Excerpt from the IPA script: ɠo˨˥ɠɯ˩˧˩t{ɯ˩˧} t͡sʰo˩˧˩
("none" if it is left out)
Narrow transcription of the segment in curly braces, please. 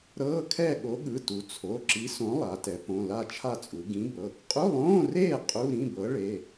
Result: u˩˧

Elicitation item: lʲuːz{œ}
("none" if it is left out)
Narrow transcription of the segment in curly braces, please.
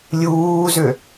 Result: ø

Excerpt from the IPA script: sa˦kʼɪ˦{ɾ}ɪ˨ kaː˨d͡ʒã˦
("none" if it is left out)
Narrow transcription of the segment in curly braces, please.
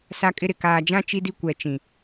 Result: ɾ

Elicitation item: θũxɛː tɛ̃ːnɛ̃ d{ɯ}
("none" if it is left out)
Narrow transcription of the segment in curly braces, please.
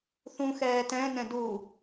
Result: u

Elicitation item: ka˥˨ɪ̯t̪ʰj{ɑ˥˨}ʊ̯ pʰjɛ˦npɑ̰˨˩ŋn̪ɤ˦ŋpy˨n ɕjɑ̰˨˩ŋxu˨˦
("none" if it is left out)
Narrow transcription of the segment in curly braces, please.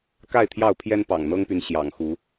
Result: ɑ˥˨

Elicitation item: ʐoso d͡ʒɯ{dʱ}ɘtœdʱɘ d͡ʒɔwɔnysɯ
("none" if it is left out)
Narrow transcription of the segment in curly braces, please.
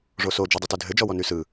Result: dˤ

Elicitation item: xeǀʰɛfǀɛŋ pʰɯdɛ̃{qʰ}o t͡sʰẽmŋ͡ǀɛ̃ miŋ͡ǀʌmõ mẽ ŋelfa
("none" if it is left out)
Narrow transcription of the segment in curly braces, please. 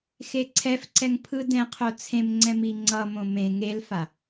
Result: qʰ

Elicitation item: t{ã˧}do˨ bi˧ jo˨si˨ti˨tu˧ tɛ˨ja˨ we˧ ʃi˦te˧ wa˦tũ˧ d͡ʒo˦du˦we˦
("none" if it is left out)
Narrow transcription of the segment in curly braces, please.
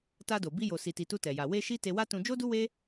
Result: a˧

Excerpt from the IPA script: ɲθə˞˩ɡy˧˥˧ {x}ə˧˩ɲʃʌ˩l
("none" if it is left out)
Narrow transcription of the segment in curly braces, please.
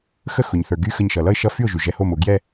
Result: x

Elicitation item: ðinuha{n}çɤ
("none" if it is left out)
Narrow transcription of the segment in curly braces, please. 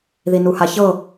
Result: none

